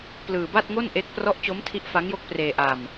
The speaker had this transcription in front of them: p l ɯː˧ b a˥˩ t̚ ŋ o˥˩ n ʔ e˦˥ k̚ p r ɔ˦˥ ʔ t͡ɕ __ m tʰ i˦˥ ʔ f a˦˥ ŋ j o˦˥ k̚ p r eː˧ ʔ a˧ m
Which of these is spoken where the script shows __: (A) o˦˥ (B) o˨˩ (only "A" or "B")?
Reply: A